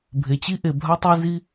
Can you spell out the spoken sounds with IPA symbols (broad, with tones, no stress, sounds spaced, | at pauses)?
bʱ e˧ t͡ɕ i˦ ʔ e˧ bʱ a˦ tˤ e˦ z i˦